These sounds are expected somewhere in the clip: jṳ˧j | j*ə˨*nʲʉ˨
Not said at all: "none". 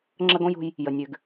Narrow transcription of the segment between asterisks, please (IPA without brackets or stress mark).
ə˨